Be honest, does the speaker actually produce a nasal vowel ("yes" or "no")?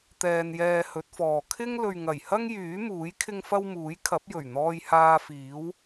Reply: no